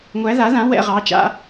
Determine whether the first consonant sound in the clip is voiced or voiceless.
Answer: voiced